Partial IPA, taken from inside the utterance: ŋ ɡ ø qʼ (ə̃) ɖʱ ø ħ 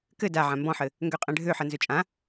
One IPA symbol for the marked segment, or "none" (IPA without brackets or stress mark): ɛ̃